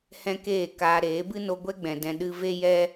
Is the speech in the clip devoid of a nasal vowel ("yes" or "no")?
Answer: no